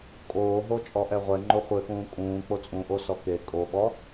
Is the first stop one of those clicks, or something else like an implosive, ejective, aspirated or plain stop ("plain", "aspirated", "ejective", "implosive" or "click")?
ejective